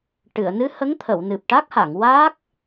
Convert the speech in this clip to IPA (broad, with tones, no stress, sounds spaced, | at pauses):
ʈ ɨ˨˩˨ ə̯ n ɨ˧˥ h ə˧˥ ŋ t̪ʰ ə˨˩˨ w n ɨ˨˩ p̚ ʈ a˦˥ k̚ h a˨˩˨ ŋ w aː˦˥ k̚